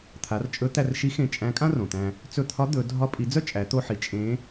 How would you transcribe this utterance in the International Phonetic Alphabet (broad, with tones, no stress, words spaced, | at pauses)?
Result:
t̪ʰa˩˧rt͡ʃʼɵ˧˥ t̪æ˧rʃi˧˥ xẽ˧ t͡ʃʼæ̃˧˥kʼã˥ rõ˩t̪æ̃˧ | t͡sɵ˧t̪ʰɒ˧˥ d̪ɵ˩˧ dʱɒ˧˥pʼi˩˧d͡zœ˥ t͡ʃʼæ˩˧t̪o˧ħi˩˧ t͡ʃʼẽ˧˥